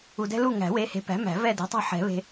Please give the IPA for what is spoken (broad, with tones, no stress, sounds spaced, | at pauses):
u˨ d ɛ̤˦ l u˦˨ ŋ æ̤˨˩˦ w e˨˥ h e̤˨˥ p æ̤˨˥ m æ̤˨˩˦ v ɛ˦˨ d e̤˨˥ tˤ ɛ̤˦˨ ħ ɛ̤˨˩˦ β e̤˨